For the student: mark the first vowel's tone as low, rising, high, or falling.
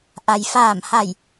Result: low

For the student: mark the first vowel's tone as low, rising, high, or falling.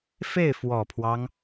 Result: falling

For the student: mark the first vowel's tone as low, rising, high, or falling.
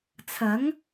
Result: rising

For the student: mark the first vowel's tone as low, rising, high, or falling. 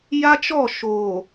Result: high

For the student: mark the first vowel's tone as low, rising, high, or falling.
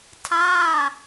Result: falling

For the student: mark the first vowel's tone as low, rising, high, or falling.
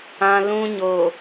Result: low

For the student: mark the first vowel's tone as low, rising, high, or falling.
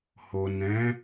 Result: low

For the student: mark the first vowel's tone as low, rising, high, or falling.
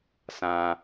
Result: low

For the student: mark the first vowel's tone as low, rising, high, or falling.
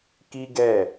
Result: high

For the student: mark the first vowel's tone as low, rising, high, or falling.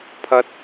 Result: high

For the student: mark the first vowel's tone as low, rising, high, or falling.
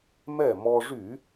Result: falling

